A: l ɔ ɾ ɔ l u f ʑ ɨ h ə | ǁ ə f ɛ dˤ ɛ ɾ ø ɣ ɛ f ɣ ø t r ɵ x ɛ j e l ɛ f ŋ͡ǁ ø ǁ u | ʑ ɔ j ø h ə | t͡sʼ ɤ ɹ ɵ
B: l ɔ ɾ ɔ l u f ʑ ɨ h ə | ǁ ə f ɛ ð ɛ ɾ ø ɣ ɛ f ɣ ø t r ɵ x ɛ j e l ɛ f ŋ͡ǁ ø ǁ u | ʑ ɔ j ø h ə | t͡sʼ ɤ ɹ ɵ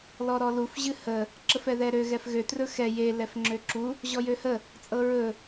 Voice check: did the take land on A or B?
B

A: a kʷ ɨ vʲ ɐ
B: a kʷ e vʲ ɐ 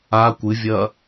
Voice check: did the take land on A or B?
A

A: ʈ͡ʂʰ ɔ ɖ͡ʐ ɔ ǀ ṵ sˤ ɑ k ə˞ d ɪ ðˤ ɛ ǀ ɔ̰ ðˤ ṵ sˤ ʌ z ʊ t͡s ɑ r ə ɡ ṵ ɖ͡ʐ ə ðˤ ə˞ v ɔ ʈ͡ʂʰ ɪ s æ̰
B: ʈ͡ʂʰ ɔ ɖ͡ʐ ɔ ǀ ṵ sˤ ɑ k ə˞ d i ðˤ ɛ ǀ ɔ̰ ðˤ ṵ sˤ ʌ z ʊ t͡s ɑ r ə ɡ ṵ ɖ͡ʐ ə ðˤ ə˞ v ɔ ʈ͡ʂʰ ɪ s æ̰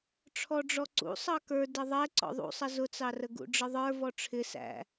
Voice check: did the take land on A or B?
A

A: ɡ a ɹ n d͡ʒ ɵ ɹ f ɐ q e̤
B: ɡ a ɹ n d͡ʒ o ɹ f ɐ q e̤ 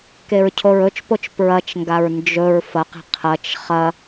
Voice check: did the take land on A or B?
A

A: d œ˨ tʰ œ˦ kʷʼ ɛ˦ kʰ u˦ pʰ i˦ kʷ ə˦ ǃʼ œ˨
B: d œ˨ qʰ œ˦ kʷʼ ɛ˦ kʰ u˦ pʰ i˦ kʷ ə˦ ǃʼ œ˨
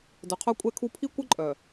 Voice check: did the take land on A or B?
B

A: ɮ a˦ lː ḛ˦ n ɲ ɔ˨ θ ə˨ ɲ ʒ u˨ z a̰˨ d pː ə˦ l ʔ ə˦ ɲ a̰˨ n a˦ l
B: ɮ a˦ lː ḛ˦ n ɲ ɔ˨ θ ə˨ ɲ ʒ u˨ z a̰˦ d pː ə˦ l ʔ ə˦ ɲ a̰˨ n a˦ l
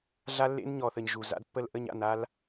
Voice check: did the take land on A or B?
B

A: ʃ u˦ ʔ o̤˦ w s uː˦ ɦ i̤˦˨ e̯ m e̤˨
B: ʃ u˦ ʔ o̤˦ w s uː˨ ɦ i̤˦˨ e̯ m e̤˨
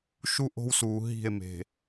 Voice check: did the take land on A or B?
B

